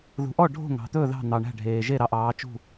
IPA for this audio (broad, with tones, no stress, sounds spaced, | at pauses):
ð ṳ˨˦ ʔ ɔ˥˨ ɖʱ o̤˥˨ ŋ ɑ̤˨ t̪ ɵ˥˨ ð ɑ̤˥˨ n̪ ɑ˨ ɳ æ̤˥˨ ɖʱ eː˨ ʒ e˥˨ ɾ ɑ˨˦ ʔ ɑː˨˦ t͡ʃ ṳ˥˨